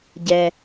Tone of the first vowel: low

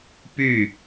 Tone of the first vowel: falling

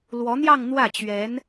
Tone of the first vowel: rising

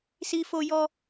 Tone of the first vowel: high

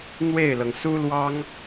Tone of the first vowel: falling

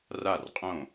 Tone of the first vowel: falling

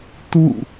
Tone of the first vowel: falling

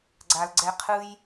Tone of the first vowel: low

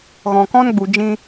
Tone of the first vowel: low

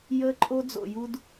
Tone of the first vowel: high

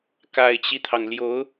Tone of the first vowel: low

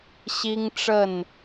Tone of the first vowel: high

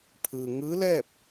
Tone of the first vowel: low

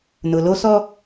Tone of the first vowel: low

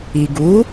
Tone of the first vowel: low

